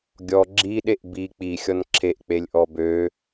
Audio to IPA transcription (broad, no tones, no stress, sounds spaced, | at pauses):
ɡʲ ɔ ɡ͡ǁ i ɗ e ʔ b i k͡p i xʲ ɔ n ǁʰ e ʔ k͡p e lʲ ʔ ɔ b ø